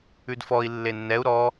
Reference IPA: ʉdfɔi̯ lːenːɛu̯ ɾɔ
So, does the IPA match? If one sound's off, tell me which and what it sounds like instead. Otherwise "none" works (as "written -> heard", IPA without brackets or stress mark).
none